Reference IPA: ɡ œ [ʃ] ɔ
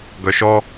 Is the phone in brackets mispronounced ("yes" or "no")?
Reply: no